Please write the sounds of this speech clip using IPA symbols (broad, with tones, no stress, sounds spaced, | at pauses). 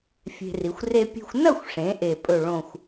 fʲ e̤˧ r i˩˧ xʷ r e˥ pʲ e̤˧ xʷ n ɐ˥˧ xʷ ʂ ẽ˩˧ ʔ e˧˩ pʼ ɵ˧˩ ɭ õ˧˩ xʷ